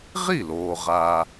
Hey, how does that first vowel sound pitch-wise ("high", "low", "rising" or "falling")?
falling